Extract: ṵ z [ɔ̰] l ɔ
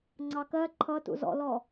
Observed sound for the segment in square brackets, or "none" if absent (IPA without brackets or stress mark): ɔ̰